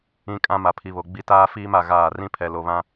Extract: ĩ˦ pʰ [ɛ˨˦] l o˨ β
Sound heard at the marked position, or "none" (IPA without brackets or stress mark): ɛ˨